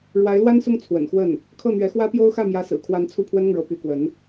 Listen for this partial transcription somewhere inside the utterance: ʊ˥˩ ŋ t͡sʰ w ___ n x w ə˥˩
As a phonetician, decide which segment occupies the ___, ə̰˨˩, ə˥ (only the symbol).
ə̰˨˩